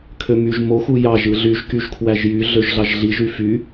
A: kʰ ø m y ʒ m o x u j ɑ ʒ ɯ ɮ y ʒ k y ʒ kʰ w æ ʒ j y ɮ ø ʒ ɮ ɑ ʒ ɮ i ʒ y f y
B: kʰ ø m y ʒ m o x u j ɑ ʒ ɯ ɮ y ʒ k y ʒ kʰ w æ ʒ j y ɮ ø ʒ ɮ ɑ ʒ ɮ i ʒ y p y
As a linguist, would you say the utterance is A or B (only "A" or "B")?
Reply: A